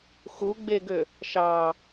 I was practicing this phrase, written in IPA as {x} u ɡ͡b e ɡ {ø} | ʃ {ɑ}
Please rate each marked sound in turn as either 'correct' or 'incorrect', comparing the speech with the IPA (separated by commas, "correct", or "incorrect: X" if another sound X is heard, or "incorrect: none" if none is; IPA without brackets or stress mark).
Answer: correct, correct, correct